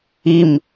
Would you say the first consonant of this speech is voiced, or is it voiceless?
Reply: voiced